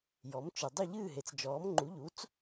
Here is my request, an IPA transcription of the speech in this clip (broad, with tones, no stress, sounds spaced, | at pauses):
j ɔ˩˥ m t͡ʃ ɨ˩ dˤ ɨ˥˩ ʎ ɨː˥˩ ɦ e˩ t͡s d͡ʒ ɔː˩˥ m ŋ͡ǃ u˩˥ ʎ u˩˥ t͡s